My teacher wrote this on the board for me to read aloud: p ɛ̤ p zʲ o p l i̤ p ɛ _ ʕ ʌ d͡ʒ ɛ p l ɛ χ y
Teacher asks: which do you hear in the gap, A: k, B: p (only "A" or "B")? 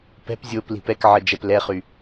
A